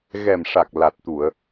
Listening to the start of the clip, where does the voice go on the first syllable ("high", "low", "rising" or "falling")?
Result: low